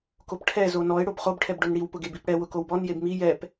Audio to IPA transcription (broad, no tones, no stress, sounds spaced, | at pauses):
k o p ʈʰ ɛ z o n ɔ ɪ̯ ɽ o b χ o b ʈʰ ɛ b ɖ ʊ n ɽ i w p ʊ ɡ e b i p ɽ ɛ w ʊ k o w b ɔ n j e b m i j ɛ p